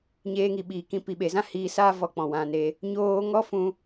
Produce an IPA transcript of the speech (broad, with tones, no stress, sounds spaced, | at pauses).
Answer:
ɲ eː˧ ŋ i˨ ɓ iː˨ k ĩ˧ p i˨ ɓ e˨ z ã˦ h iː˧ s aː˦ v ɔ˧ k͡p ɔ̃˨ w ã˧ n e˧ | ɲ oː˧ ŋ ɔ˦ f ũ˧